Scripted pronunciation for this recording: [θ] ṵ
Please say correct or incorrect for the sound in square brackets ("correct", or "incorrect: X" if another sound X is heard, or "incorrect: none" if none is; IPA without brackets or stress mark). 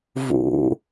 incorrect: v